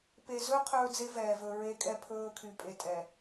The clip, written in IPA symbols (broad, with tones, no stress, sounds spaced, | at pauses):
p e˨ z ɵ˦ qʰ ɵː˦ d͡z e˦ v ɛː˨ v ɵ˨ ɹ e˦ kʼ ɛ˦ pʰ ɵː˦ kʰ y˨ pʼ e˨ tʼ ɛ˨